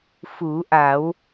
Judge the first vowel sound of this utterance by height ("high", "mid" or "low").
high